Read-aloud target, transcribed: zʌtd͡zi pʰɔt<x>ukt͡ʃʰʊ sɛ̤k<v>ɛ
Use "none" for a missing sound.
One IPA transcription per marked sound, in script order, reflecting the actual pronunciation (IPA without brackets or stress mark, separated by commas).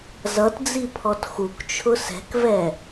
x, v